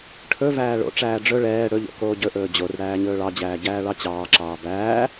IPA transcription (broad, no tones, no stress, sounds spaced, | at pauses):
ʈʰ ɵ v æː ɭ o̰ ʈ͡ʂ æː ɖ͡ʐ ɵ ɭ ɛː ɽ ɵ ʎ o̰ k oː ɟ ɵ ʔ ɵː d͡ʑ o r ɽ æː ɲ ɵː ɭ ɑ d͡ʑ æː ɟ æː ɭ ɑ t͡ɕ ɑː ǁ ɑː b æː